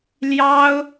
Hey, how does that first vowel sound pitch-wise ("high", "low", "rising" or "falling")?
high